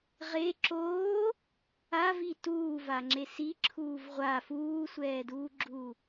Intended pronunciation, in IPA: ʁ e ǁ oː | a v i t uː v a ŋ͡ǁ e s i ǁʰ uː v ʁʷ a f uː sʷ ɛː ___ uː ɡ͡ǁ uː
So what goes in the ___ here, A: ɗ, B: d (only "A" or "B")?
B